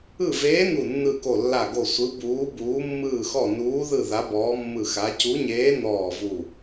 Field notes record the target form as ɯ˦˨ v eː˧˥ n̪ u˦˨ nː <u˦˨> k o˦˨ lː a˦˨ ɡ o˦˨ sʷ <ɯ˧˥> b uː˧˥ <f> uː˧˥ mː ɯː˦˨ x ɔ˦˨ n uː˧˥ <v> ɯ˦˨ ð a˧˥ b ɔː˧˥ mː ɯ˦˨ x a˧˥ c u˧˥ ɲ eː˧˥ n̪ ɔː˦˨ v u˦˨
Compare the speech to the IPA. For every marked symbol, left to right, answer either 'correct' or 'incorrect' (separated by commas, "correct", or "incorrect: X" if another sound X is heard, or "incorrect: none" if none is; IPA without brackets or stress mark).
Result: incorrect: ɯ˦˨, correct, incorrect: b, incorrect: ð